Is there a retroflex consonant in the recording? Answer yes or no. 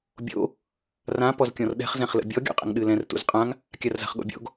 no